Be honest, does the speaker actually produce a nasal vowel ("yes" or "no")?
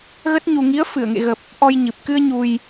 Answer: no